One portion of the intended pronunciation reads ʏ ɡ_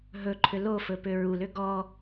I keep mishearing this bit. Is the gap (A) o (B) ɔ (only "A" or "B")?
B